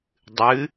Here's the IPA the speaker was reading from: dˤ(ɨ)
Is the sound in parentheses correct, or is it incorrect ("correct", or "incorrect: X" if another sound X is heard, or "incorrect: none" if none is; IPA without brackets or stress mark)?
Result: correct